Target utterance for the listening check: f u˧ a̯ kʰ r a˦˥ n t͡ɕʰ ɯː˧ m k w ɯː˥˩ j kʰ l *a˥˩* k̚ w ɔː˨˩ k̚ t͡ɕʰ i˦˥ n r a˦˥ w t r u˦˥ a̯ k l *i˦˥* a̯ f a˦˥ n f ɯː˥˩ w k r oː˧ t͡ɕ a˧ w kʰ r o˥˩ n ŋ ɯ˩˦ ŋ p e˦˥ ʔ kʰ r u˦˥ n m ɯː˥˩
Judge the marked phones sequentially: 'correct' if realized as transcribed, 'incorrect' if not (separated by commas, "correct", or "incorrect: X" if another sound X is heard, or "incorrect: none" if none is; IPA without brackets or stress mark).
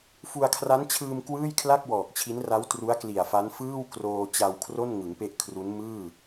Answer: correct, incorrect: i˨˩